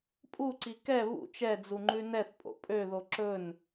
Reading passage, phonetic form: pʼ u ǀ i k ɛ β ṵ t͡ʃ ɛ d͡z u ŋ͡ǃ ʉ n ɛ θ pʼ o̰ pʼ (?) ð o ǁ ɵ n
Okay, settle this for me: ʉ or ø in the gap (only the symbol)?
ø